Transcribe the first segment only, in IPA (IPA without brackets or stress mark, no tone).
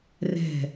r